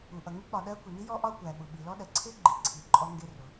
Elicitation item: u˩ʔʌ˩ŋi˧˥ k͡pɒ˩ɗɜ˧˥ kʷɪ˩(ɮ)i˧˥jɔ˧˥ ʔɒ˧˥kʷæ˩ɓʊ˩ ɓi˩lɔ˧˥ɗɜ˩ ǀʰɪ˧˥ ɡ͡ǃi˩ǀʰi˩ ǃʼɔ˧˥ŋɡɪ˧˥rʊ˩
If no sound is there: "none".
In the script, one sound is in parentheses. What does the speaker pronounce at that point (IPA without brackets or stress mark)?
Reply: n